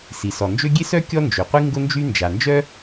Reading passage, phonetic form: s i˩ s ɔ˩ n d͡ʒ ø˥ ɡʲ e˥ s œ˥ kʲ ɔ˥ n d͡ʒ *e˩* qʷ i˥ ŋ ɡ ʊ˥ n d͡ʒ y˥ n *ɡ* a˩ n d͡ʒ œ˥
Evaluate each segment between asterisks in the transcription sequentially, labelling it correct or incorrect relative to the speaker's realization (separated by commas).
incorrect, incorrect